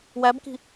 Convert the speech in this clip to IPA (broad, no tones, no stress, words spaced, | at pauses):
wæbki̤